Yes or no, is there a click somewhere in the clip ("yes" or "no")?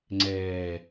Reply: yes